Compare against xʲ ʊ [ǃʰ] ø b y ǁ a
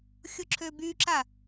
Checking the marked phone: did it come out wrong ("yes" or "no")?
yes